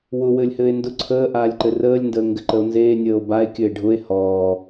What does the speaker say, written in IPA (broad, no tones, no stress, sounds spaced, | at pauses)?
w ʊ w ɘː lʲ h ɘː e̯ n d ʊ ǀʰ əː ʔ aː lʲ ǃ ɘ r əː lʲ n d əː ŋ ɡ ɘ ǃ ə o̯ n z eː nʲ əː o̯ b a e̯ kʲ ɘ e̯ ɖʱ ʊ e̯ h ɔː